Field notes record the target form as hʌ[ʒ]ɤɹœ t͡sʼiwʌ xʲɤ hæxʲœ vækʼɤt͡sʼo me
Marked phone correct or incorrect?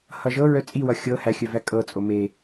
correct